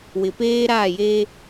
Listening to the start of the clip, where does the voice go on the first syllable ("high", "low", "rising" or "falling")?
low